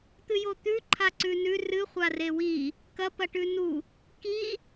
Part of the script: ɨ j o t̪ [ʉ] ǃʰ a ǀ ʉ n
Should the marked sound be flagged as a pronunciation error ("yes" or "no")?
no